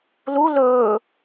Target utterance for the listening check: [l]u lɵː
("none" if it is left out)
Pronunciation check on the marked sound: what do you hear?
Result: l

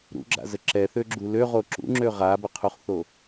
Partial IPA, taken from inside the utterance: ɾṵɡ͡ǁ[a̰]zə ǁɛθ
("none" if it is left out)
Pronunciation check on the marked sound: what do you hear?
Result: a̰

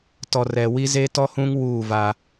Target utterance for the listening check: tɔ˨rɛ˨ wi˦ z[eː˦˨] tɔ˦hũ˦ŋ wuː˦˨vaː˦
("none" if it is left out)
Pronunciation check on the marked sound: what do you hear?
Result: eː˦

